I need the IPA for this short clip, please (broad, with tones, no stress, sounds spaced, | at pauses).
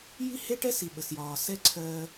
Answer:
j i˥ h e˥ ʈ ɛ˥ s i˩ ɓ ə˩ s j ɒː˩ s ɛ˥ ǀʰ ɜː˧